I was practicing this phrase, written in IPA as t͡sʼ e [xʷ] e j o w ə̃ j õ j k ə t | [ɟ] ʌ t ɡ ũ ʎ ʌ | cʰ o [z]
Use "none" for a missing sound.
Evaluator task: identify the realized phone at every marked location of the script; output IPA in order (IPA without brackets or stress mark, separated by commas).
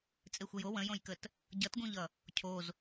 xʷ, ɟ, z